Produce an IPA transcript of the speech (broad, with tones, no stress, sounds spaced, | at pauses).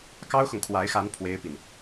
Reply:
k ɑ˥ ʊ̯ x ʊ˨ ŋ kʰ w a˧˥ ɪ̯ x a˧˥ n pʰ w e˥ ɪ̯ p i˨ n